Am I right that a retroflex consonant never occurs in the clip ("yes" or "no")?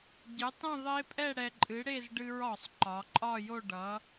no